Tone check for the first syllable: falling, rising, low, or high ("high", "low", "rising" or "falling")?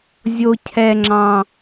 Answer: high